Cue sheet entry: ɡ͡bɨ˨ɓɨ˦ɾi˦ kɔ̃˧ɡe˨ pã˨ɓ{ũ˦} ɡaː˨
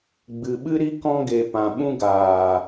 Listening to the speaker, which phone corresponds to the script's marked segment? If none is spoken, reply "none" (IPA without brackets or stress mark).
ũ˦